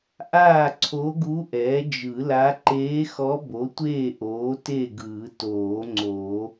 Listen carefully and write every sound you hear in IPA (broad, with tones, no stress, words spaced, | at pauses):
ʔaː˥˨ǀʰo˧˥ɡu˧˥ ʔɛː˩˥d͡ʒɯ˨˩˦la˧˥ ǃeː˧˥xɔ˧˥ bo˩˥tʷeː˥˨ʔoː˩˥ te˥˨ɡɯː˨˩˦toː˨˩˦ ŋ͡ǀo˨˩˦